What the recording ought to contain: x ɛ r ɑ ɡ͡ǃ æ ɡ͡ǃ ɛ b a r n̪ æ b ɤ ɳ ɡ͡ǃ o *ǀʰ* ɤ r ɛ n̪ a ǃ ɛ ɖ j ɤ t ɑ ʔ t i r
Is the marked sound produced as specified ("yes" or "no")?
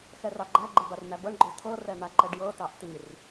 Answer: no